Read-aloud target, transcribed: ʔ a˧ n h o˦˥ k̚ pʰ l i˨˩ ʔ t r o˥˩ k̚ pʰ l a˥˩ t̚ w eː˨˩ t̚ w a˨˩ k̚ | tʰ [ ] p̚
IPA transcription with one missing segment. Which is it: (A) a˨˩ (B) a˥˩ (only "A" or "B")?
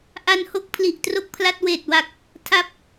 B